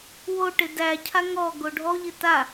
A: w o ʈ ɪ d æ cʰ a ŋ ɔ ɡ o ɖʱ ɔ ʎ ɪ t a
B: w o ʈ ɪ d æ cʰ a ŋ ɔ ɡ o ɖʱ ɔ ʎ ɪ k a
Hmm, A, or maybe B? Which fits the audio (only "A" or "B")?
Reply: A